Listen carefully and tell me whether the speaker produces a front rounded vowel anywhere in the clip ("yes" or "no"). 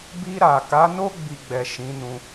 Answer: no